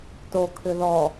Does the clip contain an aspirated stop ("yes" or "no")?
yes